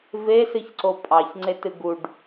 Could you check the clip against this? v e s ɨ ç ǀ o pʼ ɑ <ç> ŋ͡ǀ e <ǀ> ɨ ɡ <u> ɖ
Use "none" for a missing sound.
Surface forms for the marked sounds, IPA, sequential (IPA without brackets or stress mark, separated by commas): ç, t, u